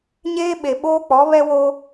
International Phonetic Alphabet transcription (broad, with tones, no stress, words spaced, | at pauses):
ɲeː˦ɓe˨ɓoː˦k͡pɔ˨˦ βɛ˦wo˦